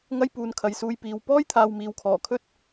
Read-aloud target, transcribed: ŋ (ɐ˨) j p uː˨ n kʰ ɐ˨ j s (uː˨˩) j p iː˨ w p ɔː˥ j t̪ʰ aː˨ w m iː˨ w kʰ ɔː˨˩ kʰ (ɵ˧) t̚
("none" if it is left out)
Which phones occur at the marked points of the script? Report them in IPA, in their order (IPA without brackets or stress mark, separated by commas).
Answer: ɐ˥, uː˧, ɵ˥